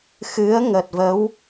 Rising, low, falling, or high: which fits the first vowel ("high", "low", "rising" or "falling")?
rising